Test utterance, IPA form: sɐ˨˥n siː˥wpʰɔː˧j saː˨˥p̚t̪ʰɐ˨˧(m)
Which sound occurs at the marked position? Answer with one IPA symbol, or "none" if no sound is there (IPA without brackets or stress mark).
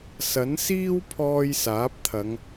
ŋ